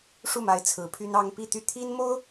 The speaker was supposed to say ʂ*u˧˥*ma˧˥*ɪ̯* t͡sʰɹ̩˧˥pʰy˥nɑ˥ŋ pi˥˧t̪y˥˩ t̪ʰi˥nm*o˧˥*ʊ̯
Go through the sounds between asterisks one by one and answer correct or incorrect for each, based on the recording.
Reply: incorrect: u˥˩, correct, incorrect: o˥

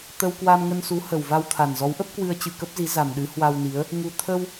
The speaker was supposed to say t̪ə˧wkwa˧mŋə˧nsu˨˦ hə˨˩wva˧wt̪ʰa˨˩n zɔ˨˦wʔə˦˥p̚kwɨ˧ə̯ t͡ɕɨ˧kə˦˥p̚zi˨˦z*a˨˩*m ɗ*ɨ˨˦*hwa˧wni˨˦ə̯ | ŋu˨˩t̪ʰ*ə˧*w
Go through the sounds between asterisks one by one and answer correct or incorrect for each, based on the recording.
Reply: correct, correct, correct

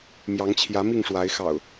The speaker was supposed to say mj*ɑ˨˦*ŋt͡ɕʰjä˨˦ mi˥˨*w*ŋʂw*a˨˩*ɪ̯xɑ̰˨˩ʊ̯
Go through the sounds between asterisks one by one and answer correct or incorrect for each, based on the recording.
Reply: correct, incorrect: none, incorrect: a˨˦

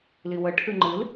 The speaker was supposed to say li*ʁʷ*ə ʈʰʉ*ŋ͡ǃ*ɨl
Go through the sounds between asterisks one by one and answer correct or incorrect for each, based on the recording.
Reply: incorrect: w, correct

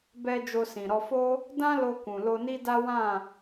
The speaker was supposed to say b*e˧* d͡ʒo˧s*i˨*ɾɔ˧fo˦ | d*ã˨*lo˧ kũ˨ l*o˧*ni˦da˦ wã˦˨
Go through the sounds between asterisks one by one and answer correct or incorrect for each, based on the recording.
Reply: incorrect: ɛ˧, incorrect: ĩ˨, incorrect: ã˦, correct

